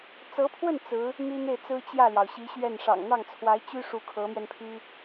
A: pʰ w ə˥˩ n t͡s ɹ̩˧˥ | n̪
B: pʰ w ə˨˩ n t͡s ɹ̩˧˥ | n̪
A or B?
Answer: A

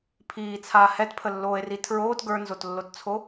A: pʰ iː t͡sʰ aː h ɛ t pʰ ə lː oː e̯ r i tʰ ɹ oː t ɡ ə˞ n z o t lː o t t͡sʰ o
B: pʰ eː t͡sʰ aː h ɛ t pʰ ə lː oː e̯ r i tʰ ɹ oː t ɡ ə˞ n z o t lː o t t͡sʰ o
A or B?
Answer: A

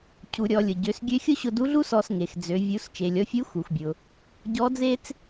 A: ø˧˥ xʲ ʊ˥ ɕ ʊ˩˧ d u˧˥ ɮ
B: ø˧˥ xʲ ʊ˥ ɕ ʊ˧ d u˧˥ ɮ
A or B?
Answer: B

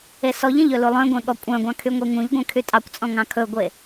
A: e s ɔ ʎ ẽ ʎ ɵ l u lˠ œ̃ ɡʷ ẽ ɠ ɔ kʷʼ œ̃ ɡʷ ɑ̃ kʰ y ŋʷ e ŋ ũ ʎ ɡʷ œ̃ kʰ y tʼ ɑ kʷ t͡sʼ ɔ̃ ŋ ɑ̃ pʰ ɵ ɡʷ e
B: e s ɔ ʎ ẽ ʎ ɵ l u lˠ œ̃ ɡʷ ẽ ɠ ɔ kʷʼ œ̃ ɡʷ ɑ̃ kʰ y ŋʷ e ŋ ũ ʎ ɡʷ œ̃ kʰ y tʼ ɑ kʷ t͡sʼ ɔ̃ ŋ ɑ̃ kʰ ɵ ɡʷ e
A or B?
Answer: B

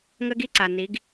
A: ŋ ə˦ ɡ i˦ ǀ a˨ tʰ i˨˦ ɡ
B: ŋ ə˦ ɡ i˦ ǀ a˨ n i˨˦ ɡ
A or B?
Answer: B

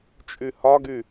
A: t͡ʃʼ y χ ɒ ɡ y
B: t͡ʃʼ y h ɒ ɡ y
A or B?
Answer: B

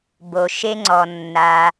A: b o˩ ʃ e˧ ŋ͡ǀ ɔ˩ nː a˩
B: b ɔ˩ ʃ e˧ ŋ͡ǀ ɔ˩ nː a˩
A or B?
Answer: A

